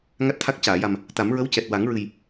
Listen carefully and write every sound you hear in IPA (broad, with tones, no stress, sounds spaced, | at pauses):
ŋ a˦˥ t̚ t̪ʰ a˦˥ k̚ c aː˨˩˨ j a˨˩ m | t̪ a˨˩˦ m ɹ ə˧˥ w c ɛ˨˩ t̚ w a˨˩˦ ŋ ɹ ɨ˨˩ j